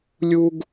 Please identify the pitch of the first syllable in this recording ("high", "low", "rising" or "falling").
high